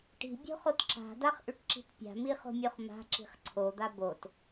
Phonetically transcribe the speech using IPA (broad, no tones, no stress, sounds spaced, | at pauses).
ʈ i̤ bʲ o̤ χ o t ǁ a̤ d a χ ʔ ʉ ʈ ǁ i̤ t pʲ a̤ m i χ o̤ mʲ o χ m a̤ ǁ i̤ χ ǀʰ o d̪ a b o t